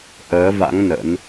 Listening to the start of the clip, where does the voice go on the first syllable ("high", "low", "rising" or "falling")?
rising